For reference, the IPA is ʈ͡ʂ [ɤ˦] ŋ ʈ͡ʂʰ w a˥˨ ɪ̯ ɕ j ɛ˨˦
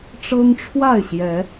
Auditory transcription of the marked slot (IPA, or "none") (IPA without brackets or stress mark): ɤ˦